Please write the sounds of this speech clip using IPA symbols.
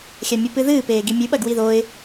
xʲ a mʲ u p ɨ ð ɨː p eː ɡ i mʲ ʉ ɓ ɐ ɡ w i ð o ɪ̯

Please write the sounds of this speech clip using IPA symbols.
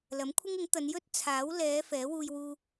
l ɐ˨˥ m kʷʰ ɪ˥ ŋ ɪ˨˥ ŋ t̪ ɐ˨˧ n j ɵ˥ t̚ t͡sʰ aː˨˥ w l ɛː˨˧ f ɛː˨˥ w uː˧ j w uː˧

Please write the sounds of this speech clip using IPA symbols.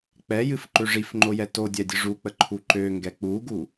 k͡p ɛ j ɨ f ǃ ø ʐ i f ŋ͡ǃ o j ɛ t o dʲ ɛ dʲ ɨ ʐ u k͡p ə ǃʰ u ǃ ø ŋ ɡ ɛ k͡p u ɡ u

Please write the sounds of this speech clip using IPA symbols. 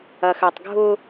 ɐ x ɜ tˤ ɡʱ ʊ

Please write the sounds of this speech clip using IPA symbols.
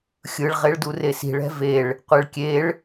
xʲ ɯ ɭ ʁ e ɭ d u r e s i̤ ɭ ɛ̤ v e ɭ | qʷ e ɭ kʲ e ɭ

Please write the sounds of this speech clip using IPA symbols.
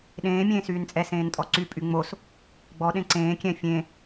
ɗ ẽː mʲ ẽː s yː n t͡sʼ ɛ s ẽː n tʼ ɔ ǀ y pʼ y ŋ͡m o s | ɡ͡b ɔ ɗ ẽ ǀ ẽː kʲ ɛ̃ fʲ ẽ

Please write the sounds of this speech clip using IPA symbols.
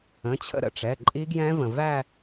ə̃˩˧˩ t͡ɕʰ ə̰˥˧ ɾ ə̰˩˧˩ ʈ͡ʂ ɛ˩˧˩ ǃʼ i˦˥ ɡ j ɛ̃˦˥ v ə̃˩ v æ˥˧

